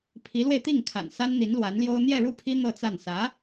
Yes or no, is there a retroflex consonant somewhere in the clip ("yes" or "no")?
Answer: yes